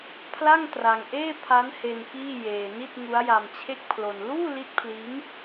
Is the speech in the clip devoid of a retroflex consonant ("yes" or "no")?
yes